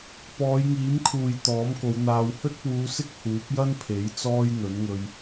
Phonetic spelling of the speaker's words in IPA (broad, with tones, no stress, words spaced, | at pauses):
pɔː˨˧jŋiː˨˥mkʰuː˨j t̪ɔː˨˥mko˨˧wn̪aː˧w hɵ˥t̚puː˨˧sɪ˥k̚ huː˨˥p̚jɐ˥npʰe˨˥j t͡sɔː˥jn̪ɵ˨˥nŋɵ˧ɥ